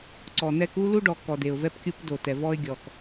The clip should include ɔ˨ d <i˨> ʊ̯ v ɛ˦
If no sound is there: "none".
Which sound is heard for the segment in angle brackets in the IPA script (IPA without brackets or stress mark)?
e˨